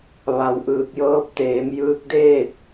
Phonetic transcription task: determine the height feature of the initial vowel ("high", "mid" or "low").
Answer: low